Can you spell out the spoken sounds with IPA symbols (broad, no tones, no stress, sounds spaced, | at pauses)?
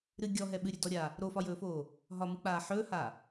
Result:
ɾ ɨ ɡʲ ɔ ɦ ɛ ɓ ɨ ɾʲ ɵ d ɔ ɾʲ a | ɾ o f ɒ j ɵː f oː | ɦ ɒ m ɨ k͡p aː ħ ɵː h a